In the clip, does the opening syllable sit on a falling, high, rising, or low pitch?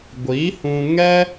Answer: rising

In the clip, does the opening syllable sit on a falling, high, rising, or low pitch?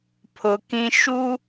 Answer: low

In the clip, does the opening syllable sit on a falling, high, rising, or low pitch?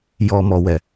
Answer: low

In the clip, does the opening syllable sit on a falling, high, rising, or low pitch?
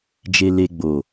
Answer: low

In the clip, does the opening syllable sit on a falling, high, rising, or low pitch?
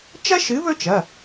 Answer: high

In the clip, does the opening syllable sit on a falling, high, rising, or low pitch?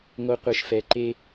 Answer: high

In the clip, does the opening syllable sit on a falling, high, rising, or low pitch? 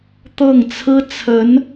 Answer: falling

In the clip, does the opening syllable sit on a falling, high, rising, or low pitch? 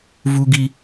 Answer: high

